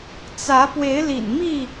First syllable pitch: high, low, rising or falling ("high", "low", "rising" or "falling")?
rising